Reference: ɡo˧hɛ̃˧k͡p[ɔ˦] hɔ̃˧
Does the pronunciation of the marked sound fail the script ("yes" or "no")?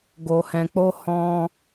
yes